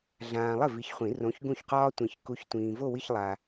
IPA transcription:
ɮ ãː˨ lˠ ɪ˥˩ v i˨˥ ç χʷ ĩ˨˩˦ r õ˨˥ ç ɡ ũ˥˩ ç q ɒː˥ tʷ ĩ˨ ç k u˨˥ ç tʷ ĩː˨ v o˥˧ w i˥˧ ç lˠ a˨

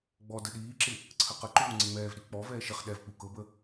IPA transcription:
ɡ͡b ɔ d ə ɗ iː ǁ ɪ | ǀʰ ə q ə ǃ uː ŋ͡ǀ ɪ ŋ͡m ɛː v ɗ i k͡p ɔ v ɛː ʃ ɪ χ ɗ ɛ v k͡p u k ɤ b ə

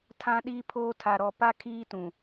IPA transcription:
tʰ ã˦ ɗ iː˦ pʰ oː˦ tʰ a˨ ɾ ɔ˨ p a˦ kʰ iː˦ t ũ˨

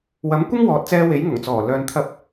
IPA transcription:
w ɐ˨˥ m kʷ ɪ˥ ŋ w ɔː˨˥ t̚ t͡s ɛː˧ w e˨˥ j ŋ ʊ˨˩ ŋ t͡s ɔː˨˩ l œː˨ n t̪ʰ ɐ˧ p̚

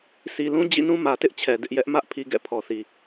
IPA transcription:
sʰ i˨ l ũ˦ d͡ʑ ḭ˦˨ n ũ˦ m ä˨ t ɪ˦ ʔ t͡ɕʰ ɛ˨ d ɪ˦ ʔ j ɛ˦ ʔ m ä˦ ʔ pʰ i˨ ɡ ɛ̰˦˨ pʰ ɔ˨ θ i˨

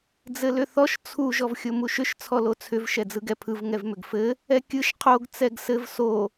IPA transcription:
d͡z ɘ l ʏ θ ɔ ʃ t͡sʰ u ʒ ɔ v xʲ o m u ʃ ʏ ʃ t͡sʰ ɔ l o t͡sʰ ʏ v ʃ ɛ d͡z ɯ ɡ ɛ pʰ ɯ v ŋ ɛ v m ʏ ɡ f ɘ | ɛ kʲ ɯ ʃ qʰ o ɡ t͡s ɛ ɡ s ɘ v s o

